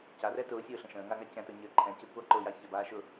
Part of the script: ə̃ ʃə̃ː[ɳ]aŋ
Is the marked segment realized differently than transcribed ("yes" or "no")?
yes